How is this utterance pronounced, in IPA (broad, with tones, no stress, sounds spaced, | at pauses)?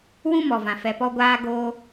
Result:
w ũ˦ m ɔ˨ v ã˨ f ɛ˨ p ɔ˧ ɡʷ aː˧ ɡ oː˧